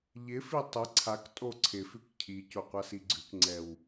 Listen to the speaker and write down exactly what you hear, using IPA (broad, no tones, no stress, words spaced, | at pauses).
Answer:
ʎɪfi tˤɪ ǀʰak tʼoǀʰɪfʉk cʰico qʷasiɡ͡ǀʉkŋ͡ǀɛw